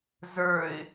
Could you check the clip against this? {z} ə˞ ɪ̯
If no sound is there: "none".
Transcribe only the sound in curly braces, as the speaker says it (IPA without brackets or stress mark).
z